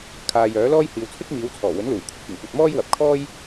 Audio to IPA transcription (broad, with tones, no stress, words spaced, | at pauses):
kʰaː˨jœː˨˥lɔː˥j hiː˨w t͡sʰɪ˥k̚miː˨˧wt͡sʰɔː˨˩ wɵ˨˥nluː˨˩jkʷʰɪ˧k̚ wɪ˨˩ŋkʷɐ˨t̚mɔː˥j wɐ˨˥p̚kʰɔː˥j